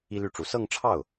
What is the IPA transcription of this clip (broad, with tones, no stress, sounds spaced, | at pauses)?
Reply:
i˥ l y˥˩ ʈ͡ʂ u˧˥ s ɤ˥˧ ŋ ʈ͡ʂʰ ɑ˥˩ ʊ̯